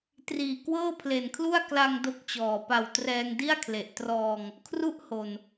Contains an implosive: no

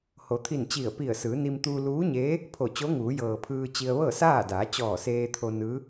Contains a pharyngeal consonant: no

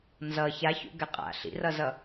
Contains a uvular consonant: yes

